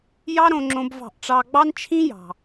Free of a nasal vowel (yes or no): no